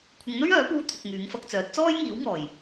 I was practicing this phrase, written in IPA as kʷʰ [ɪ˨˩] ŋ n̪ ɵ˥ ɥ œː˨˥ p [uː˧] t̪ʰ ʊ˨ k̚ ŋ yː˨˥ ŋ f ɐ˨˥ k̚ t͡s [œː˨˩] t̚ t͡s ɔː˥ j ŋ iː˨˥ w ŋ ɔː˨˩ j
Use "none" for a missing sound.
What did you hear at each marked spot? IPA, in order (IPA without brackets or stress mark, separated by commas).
ɪ˨˧, uː˧, œː˨˥